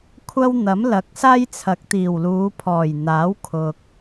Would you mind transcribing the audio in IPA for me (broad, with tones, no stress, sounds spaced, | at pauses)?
kʷʰ ɐ˥ w n̪ ɐ˨˥ m l ɐ˨˥ k̚ s aː˥ j t͡sʰ ɐ˨˥ k̚ t̪ iː˨˩ w l uː˨˧ pʰ ɔː˨˩ j n̪ aː˨˥ w kʰ ʊ˧ k̚